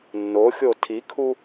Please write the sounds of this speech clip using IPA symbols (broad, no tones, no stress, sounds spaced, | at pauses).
nː o xʲ o tʰ i kʰ u